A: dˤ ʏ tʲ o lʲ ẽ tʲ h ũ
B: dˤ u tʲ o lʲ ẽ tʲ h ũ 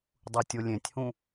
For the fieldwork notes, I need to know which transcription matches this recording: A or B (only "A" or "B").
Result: B